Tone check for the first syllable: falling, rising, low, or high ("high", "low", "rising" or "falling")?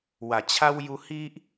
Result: low